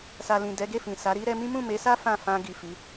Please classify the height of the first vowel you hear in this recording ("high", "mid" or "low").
low